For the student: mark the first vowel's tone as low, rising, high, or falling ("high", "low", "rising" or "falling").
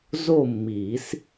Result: falling